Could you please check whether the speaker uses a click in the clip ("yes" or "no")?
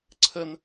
yes